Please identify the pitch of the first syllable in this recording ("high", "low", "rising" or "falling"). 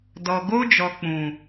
low